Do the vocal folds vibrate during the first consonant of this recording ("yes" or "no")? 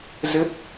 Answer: yes